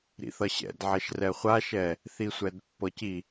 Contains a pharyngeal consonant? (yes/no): yes